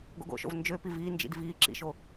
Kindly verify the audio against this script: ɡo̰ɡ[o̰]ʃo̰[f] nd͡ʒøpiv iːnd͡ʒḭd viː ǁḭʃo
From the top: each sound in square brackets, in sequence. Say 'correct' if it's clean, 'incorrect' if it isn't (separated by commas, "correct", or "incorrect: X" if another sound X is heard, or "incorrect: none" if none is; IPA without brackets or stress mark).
correct, incorrect: v